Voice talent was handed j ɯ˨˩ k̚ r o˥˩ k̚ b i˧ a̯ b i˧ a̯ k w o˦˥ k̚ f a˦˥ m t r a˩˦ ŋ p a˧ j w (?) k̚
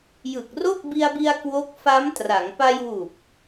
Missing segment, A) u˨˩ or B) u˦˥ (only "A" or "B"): A